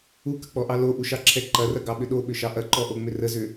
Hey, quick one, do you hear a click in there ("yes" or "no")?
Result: yes